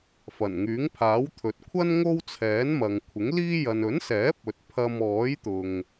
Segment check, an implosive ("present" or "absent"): absent